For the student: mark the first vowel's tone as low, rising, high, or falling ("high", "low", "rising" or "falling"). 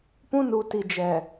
high